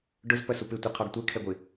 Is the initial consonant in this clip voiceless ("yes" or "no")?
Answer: no